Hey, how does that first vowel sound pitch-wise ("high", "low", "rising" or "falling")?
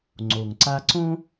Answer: low